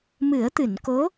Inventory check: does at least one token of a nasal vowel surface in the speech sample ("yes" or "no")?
no